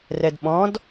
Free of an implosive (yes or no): no